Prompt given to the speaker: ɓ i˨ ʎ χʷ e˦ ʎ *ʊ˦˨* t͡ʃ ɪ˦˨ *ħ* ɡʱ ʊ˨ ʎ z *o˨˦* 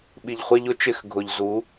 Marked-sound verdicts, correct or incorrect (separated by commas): incorrect, incorrect, incorrect